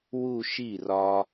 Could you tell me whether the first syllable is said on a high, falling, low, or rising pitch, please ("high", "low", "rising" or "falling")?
falling